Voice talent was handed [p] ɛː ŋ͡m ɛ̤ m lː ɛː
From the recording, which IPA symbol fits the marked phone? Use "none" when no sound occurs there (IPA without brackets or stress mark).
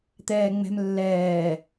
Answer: t̪